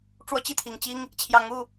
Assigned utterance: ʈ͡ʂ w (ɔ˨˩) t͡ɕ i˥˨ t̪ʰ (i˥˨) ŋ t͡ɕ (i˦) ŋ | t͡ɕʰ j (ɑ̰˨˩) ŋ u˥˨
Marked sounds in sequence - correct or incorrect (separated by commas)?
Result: incorrect, incorrect, correct, incorrect